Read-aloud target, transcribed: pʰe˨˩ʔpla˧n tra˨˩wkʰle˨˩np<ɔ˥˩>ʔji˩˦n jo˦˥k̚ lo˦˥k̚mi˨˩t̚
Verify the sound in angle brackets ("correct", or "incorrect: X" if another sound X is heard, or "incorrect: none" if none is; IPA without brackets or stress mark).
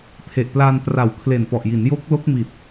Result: incorrect: ɔ˨˩